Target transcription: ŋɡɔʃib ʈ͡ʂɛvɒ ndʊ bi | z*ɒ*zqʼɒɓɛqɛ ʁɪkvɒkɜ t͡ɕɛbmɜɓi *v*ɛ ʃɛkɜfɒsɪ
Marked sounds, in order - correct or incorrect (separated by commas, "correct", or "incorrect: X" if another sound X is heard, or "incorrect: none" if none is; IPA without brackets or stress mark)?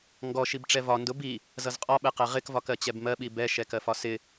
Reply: incorrect: ʌ, incorrect: b